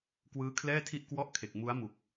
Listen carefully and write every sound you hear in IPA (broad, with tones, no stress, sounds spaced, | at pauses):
k w ɯː˦˥ kʰ l ɛː˥˩ tʰ i˥˩ ʔ k w ɔ˥˩ ʔ kʰ e˨˩ k̚ m u˦˥ a̯ m u˨˩ k̚